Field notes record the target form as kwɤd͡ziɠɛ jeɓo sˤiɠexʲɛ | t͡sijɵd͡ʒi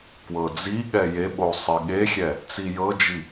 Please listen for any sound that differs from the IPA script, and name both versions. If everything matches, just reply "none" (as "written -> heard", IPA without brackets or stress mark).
ɵ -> ɤ